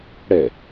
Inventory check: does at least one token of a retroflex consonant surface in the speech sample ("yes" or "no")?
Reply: yes